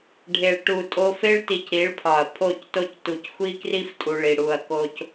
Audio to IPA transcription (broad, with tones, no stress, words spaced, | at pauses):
ɖʱe˨ɭ ʈu˨tʼo˧fe˦ɭti˨c ɾi˨˦ɭpʰɒ˨ɐ̯ pʰo˦˨cto˦c tu˨cxʷi˦kri˦ftʼu˨ɭ i˨ ɽu˧ɐ̯ko˦c